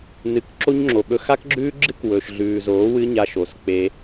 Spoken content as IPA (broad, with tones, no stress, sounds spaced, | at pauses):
n ɨ˨ k ǁ o˦ ɲ ŋ͡ǁ o˨ ɓ ɵ˧ x a˦ k ɡ͡ǁ ʉː˦ ɡ͡ǁ ɨ˦ k w ɵ˨ ʃ ɮ ʉː˨ z oː˨˦ w ɨ˦ ɲ a˧ ʃ o˨ s k͡p e˦